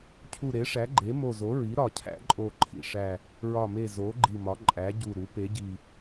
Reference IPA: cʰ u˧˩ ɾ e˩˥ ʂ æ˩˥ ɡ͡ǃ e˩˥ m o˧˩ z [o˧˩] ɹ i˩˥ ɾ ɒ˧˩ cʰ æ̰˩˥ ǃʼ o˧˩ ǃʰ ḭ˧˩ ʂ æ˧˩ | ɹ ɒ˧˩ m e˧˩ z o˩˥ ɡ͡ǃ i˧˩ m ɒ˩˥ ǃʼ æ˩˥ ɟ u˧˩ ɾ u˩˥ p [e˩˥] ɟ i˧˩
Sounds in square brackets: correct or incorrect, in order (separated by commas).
incorrect, correct